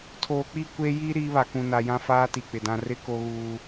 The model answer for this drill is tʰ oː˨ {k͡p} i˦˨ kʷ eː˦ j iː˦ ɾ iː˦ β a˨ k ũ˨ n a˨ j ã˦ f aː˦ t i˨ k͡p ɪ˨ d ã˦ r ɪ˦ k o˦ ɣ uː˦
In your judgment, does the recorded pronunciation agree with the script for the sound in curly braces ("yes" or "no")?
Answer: yes